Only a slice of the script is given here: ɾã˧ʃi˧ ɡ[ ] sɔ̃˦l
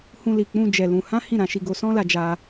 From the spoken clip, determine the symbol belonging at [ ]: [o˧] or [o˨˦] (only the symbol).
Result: o˧